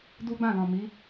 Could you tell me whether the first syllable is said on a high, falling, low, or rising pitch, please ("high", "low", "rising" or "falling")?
high